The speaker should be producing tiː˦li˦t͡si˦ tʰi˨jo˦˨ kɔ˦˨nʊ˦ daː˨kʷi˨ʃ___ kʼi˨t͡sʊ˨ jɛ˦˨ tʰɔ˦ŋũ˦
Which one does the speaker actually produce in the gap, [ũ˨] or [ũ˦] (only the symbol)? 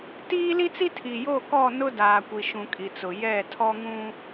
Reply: ũ˨